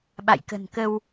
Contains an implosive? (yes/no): yes